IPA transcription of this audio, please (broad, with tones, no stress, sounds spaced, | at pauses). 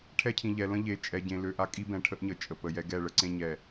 ʈʰ ɛ˦ cʰ ĩ˨ ʎ ɛ˨ l ə̃˦ ʎ e˨ t͡ʃʼ ɛ˨ ɟ ẽ˨ l ø˨ ʔ a˦ kʼ i˦ b ɛ̃˨ ʈʰ ə˦ ʔ ɲ ə˨ t͡ʃʼ ə˨ p ə˨ j ɛ˦ ɡ ɛ˦˨ ɭ ə˦ ǀ ẽ˦ ɲ ɛ˨